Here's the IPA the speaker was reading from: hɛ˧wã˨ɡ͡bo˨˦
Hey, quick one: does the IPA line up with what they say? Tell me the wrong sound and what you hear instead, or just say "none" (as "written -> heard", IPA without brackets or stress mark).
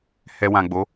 none